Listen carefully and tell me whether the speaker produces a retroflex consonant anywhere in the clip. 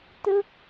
no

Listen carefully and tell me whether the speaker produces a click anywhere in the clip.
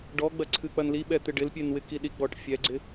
yes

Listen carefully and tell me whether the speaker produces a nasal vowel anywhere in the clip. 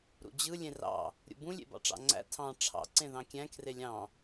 yes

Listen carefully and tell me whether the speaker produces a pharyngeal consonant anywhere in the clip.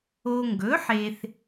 yes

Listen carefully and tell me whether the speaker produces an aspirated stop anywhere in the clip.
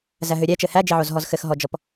no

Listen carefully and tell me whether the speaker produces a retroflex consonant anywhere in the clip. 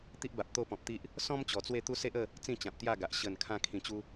no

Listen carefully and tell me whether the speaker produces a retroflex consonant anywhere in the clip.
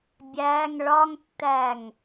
yes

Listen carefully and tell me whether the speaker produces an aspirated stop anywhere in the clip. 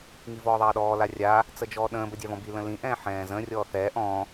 no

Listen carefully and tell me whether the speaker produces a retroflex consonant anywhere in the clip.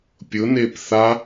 no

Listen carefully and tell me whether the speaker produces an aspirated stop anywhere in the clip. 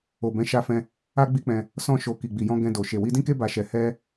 no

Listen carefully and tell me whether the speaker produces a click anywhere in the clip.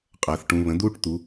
no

